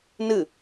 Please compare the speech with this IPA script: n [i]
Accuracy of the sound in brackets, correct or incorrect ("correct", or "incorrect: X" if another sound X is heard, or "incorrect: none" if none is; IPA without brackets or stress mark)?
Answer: incorrect: ɨ